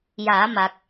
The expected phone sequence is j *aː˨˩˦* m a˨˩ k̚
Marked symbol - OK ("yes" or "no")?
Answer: yes